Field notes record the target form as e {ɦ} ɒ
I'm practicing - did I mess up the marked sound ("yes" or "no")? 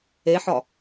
yes